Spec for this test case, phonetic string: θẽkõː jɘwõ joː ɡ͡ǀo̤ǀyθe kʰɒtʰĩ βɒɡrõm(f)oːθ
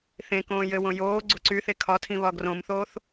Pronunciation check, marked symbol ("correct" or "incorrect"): incorrect